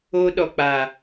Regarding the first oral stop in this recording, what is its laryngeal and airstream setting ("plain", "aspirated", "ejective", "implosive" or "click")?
implosive